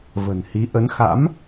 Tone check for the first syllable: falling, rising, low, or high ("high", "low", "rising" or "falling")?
low